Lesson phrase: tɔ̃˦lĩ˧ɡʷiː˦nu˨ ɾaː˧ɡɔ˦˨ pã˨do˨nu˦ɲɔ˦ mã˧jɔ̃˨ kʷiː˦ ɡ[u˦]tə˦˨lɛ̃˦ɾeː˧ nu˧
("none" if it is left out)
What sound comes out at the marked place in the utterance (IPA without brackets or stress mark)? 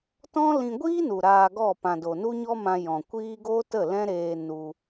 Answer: o˦